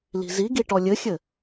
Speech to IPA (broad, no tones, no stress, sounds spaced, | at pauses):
l i̤ z i ɡ i ʈ ɔ lʲ ɘ xʲ ɘ